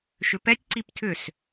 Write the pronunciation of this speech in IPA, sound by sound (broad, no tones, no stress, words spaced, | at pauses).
ʃʏpɛtʲ ǀiptʰʏs